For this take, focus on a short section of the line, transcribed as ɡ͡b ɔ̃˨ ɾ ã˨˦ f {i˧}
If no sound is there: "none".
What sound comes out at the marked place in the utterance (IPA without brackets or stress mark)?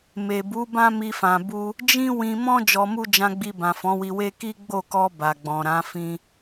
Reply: ĩ˧